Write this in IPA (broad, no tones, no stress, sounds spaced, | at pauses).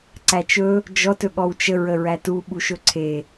ǀ æ t͡ʃ ɵ | d͡ʒ ɔ t ɵ ɠ ɔ w t͡ʃ ə ɹ ə ɹ æ t u ɓ u ʃ ɵ ǀʰ e